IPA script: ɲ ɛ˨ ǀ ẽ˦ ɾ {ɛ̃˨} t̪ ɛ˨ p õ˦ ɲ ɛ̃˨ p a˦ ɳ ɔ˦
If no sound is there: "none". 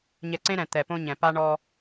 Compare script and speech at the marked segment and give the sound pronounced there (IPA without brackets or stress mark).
ɛ̃˨